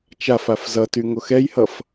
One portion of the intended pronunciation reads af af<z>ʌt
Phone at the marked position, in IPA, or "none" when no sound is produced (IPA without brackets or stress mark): z